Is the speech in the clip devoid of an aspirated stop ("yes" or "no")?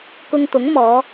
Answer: yes